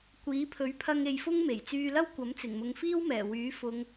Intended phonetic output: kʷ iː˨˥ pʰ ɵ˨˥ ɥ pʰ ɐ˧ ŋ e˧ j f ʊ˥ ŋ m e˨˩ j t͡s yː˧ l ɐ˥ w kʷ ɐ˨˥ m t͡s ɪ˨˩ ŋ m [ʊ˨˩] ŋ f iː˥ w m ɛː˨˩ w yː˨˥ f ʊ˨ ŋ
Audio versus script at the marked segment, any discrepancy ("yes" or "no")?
yes